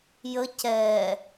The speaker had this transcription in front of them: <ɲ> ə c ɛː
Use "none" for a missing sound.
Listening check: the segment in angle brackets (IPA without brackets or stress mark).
j